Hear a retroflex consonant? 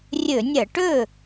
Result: yes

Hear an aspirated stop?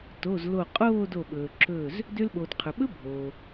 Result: yes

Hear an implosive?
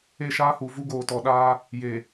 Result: yes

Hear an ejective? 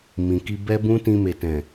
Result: no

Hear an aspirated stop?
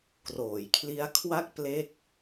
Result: yes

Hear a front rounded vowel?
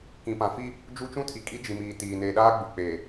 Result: no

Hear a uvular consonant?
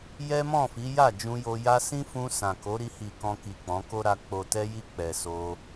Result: no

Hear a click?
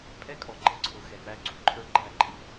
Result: yes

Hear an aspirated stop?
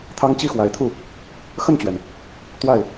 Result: yes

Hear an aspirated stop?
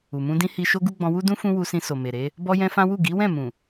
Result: no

